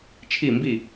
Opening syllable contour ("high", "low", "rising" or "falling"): falling